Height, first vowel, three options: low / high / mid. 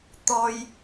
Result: mid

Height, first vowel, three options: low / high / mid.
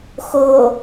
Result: mid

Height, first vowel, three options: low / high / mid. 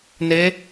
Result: mid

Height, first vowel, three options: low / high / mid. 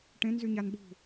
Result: mid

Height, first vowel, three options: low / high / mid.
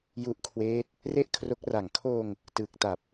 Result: high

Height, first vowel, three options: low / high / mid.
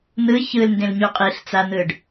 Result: high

